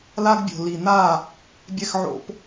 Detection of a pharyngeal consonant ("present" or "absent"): present